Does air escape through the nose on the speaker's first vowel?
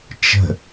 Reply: no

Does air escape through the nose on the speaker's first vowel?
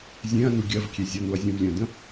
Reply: yes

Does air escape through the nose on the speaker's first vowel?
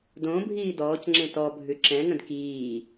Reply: yes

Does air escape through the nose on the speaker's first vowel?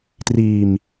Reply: no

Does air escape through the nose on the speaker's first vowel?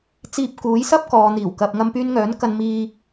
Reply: no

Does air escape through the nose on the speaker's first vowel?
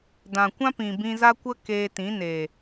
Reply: yes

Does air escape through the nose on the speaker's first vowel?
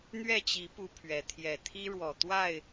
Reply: no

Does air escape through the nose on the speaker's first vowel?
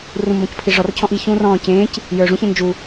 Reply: yes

